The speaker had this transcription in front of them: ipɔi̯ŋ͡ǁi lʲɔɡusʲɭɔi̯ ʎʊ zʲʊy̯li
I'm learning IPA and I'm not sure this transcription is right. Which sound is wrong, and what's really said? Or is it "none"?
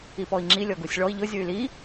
none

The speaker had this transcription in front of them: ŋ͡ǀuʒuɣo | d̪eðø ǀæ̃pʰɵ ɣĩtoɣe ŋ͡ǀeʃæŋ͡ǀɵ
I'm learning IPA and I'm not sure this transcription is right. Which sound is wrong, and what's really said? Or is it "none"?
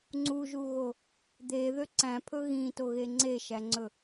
none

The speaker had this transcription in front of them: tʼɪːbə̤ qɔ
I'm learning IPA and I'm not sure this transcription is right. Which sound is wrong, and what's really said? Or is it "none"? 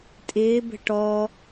q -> ʈ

